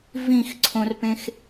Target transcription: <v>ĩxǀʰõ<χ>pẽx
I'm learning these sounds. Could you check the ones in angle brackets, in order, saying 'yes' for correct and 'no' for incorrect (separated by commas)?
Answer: yes, no